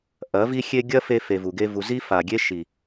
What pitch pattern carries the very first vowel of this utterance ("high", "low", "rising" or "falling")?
rising